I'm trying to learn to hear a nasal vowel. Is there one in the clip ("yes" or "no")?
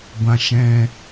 yes